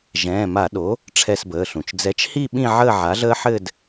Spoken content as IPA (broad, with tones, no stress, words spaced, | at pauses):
ʒɛ̃ː˩˧˩ma˧˩˧ɗo˩˥ | ʈ͡ʂʰɛ˦˨sbəː˩˧˩ɬũ˩t͡ʃ d͡zɛ˩˥t͡ʃhi˦˨ ɓĩ˦˨ʕəː˦˨ ʕa˩˥ɮəː˦ħɘ˦˨d